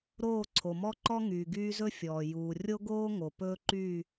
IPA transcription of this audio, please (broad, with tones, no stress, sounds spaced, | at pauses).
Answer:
ɾ oː˦˨ ǀʰ o˨ m ɔ˦ ǃ ɔ˦ ŋ yː˨ ɡ yː˦ z ɵ˦ fʲ ɔː˨ j uː˨ rʲ o˦ ɡ oː˦ ŋ o˨ p ɵː˦ ǃ yː˦˨